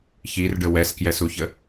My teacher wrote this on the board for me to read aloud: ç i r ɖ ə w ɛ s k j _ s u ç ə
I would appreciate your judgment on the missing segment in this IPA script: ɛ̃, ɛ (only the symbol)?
ɛ